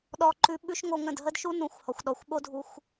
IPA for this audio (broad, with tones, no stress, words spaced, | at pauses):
ɗɔ˧ǃʉ˧ ɓʉ˦ʃŋo˧ ŋə̃˦˨d ɦə˦dʃu˦nũ˨˦xʷhɔ˨xʷ ɗɔ˨xʷɓo˦dʱu˧xʷ